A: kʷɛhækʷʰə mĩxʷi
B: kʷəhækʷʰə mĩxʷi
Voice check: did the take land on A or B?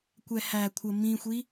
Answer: A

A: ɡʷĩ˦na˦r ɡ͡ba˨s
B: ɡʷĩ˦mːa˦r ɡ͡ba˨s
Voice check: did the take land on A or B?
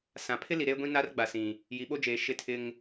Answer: A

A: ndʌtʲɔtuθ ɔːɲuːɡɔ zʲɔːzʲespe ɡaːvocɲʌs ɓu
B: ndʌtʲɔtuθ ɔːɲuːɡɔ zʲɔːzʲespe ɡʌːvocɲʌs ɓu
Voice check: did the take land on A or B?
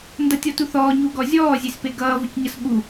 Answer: B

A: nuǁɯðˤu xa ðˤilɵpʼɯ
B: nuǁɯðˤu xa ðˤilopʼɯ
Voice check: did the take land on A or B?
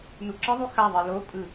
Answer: B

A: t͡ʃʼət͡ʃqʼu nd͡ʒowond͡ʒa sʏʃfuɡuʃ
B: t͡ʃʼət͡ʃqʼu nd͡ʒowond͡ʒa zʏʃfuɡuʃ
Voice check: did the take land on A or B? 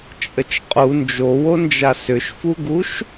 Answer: A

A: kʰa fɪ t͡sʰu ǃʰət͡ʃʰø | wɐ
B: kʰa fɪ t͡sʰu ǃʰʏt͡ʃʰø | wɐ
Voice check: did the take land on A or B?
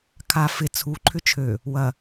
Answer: B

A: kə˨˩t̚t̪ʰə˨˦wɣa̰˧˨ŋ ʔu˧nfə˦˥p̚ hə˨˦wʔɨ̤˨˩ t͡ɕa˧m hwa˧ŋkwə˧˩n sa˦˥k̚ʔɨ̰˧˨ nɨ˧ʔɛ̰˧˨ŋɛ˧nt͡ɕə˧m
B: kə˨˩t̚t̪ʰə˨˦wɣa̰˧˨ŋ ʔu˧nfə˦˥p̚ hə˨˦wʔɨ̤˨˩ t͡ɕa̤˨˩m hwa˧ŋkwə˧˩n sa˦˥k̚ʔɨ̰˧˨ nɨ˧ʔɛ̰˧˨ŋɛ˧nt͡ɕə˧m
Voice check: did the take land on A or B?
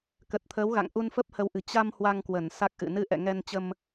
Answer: A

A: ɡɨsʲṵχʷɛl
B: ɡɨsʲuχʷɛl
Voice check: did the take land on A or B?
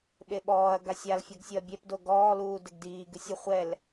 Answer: B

